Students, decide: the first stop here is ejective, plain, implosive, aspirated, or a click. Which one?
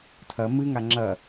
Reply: aspirated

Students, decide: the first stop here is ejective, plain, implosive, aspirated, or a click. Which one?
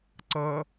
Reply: click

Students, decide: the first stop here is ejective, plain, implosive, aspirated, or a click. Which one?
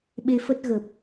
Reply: implosive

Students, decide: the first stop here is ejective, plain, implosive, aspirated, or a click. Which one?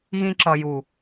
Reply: click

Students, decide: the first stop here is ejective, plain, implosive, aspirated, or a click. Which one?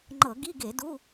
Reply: click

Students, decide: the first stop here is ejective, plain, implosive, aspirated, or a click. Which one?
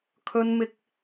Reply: aspirated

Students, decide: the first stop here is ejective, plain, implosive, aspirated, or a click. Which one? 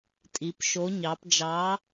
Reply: ejective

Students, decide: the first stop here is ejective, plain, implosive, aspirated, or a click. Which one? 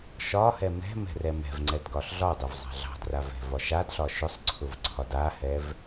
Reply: click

